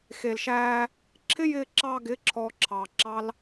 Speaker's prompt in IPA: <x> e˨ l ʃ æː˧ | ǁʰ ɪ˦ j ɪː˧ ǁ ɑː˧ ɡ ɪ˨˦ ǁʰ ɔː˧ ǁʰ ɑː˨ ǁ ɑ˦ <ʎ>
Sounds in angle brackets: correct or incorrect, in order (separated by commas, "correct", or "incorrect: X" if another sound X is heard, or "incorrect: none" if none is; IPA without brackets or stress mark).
correct, incorrect: l